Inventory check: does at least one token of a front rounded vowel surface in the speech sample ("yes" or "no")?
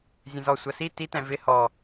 no